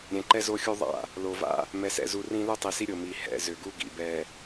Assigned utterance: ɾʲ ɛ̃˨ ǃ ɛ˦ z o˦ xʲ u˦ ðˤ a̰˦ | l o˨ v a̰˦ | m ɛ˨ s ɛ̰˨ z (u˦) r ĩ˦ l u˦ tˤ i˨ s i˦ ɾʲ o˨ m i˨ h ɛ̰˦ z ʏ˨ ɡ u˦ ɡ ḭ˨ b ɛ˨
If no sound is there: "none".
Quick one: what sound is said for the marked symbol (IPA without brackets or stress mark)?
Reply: u˨